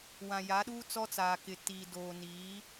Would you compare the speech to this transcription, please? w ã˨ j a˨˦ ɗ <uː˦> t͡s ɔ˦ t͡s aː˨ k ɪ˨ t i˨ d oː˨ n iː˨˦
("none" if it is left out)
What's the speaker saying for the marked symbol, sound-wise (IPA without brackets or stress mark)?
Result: uː˦